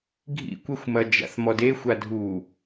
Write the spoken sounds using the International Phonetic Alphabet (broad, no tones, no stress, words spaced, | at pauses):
ɡʱḭkʷɛxʷmɐ d͡ʒa̰θmɔdexʷa dʱu